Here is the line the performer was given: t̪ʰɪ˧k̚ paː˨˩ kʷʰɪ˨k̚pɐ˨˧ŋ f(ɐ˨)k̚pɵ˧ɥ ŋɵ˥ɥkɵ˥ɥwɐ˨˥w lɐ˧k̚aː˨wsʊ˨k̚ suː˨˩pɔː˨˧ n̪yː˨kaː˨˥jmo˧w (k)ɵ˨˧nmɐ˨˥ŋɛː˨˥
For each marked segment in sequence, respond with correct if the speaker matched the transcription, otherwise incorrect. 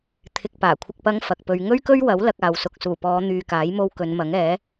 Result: correct, correct

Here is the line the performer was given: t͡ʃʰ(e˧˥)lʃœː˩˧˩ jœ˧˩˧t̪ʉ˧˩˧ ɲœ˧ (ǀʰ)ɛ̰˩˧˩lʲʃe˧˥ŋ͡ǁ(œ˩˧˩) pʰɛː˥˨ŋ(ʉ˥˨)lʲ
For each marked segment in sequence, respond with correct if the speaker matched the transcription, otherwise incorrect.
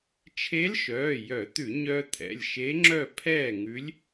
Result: correct, incorrect, incorrect, incorrect

